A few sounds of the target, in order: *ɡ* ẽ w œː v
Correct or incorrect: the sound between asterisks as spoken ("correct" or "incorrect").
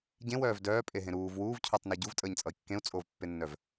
incorrect